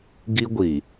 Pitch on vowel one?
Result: high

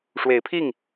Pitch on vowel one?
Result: rising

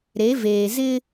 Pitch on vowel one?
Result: rising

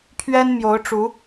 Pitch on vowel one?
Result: high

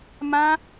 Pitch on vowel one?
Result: high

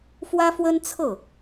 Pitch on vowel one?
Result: high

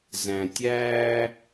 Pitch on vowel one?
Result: low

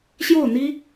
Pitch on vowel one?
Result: falling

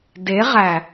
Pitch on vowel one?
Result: rising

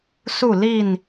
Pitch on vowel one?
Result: falling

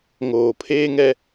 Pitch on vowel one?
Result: low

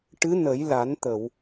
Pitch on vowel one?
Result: rising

